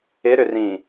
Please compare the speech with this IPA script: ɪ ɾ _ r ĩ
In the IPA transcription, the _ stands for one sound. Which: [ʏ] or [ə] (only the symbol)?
ʏ